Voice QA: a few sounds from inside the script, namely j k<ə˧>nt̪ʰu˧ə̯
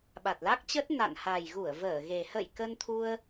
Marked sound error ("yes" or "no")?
no